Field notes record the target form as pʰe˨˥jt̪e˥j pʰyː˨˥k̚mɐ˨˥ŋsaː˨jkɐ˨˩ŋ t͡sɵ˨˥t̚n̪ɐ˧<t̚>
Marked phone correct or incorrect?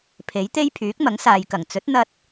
correct